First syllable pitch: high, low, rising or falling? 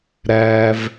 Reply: high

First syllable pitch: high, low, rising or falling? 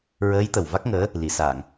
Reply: rising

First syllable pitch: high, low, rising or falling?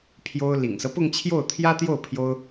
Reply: high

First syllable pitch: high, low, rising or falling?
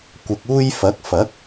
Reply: low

